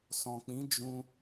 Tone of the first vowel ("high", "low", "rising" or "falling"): low